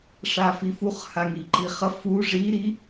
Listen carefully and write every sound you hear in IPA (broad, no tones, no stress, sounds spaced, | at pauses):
ʂ a f i f u χ h a ŋ i ǃ i χ ʌ f u ʐ i ɾ i